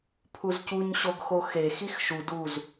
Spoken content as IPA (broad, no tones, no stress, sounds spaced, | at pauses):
pʰ u z c u ɲ ɕ o ɡ x o x e x i x ʃ u d u z